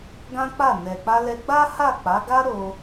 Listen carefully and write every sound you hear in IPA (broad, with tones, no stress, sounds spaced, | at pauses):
ɡ ã˦ k͡p a˦˨ n ɛ˨ k͡p a˧ l ɛ˧ ɡ͡b a˦ h a˦˨ k͡p a˨˦ ɡ a˦ ɾ o˧